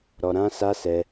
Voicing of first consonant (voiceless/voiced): voiced